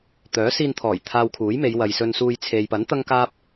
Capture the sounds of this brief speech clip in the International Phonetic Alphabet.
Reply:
t̪œː˨˥siː˧nt̪ʰɔː˨˩j t̪ʰaː˧wkʰuː˨˥jme˨˧j wɐ˨j sɵ˧nsuː˧j t͡sʰe˨jpɐ˨˥n t̪ɐ˥ŋkaː˥p̚

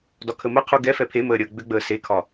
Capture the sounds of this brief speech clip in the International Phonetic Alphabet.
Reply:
dɒkʰəməqʰu ɡɛ fɛpʰeməː ɾʲəːɡ͡bʏɡ͡bəː sekʰɒ

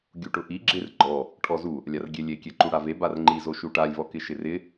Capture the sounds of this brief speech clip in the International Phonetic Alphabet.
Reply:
ɡʲuʈʊʔi ɡ͡ǁɪr ɡ͡ǃɔ | ʈʰɔzu | lʲarɡʲelʲekʲɛ ǃuɽave barŋ͡ǃizo ʃuʈalʲvɔ kɪʃɪrɪ

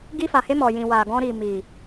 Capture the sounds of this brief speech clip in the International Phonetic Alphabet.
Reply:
ɡi˧fa˨he˧ mɔ˨jĩ˨wa˨ ɡɔ̃˧ɾi˨mi˨

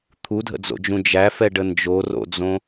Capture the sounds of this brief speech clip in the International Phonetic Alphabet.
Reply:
t̪ʰudʱə̰d͡zo̰d͡ʒũ d͡ʒæfɛɖə nd͡ʒoro̰d͡zõ

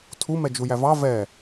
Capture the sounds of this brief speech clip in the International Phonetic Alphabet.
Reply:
tʰumɛd͡ʒu jævɑ vɛ

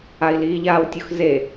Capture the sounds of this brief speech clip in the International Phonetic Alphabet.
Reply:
ai̯liːʎaːwtʲʊx ze

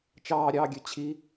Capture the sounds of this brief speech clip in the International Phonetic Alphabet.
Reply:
t͡ʃɑːɾʲɑːɡʲø t͡ɕʰi

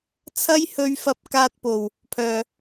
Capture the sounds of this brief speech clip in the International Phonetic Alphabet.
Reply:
t͡sʰɐ˥jhɵ˧ɥ fɐ˧p̚kaː˧t̚po˨˩w | pʰœː˨

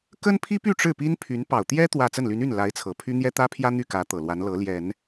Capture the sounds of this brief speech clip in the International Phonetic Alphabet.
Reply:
kə˥npʰi˥py˥˧ ʈ͡ʂɻ̩˥˩pi˥npʰy˧˥n pɑ˨˩ʊ̯t̪jɛ˥ t̪wä˥˧ t͡sə˥˩nly˧˥ny˥˩n la˧˥ɪ̯t͡sʰɤ˨˩pʰy˥ n̪jɛ˥t̪ä˥pʰjä˥ n̪y˥˩kä˧˥ t̪ɤ˨˩lwa˧˥n lɤ˧˥ljɛ˨˩˦n

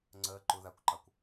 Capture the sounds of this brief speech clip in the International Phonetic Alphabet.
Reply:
ŋ͡ǀɜ ǃʊ ðakʷǃɑkʷ

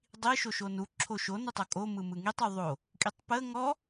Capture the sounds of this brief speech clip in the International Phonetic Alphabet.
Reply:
dˤi ʃoʃonu ǁʰoʃo nətˤokʼo mɯmɯŋitˤ uðˤo | kʼitˤpə ŋɔ

